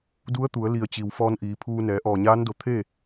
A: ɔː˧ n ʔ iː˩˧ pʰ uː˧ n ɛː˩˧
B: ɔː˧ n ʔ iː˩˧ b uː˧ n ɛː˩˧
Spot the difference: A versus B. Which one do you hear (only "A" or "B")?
A